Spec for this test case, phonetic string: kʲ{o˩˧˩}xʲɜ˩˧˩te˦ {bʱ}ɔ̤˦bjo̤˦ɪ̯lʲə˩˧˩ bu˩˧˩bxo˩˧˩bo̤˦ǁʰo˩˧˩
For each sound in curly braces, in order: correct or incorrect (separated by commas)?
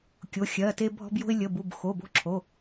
correct, correct